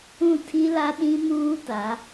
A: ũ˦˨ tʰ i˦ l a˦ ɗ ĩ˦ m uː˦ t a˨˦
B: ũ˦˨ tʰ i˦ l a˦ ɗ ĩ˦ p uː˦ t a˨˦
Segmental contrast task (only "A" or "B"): A